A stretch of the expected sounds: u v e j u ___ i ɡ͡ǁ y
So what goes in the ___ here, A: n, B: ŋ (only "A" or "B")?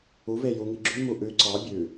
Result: B